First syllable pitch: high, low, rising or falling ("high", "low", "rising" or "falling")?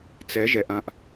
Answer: rising